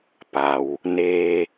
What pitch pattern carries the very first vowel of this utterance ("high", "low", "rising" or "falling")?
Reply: low